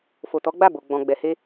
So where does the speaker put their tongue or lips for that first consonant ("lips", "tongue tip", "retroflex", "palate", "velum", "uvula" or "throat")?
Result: lips